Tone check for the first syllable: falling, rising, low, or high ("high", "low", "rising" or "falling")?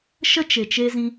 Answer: high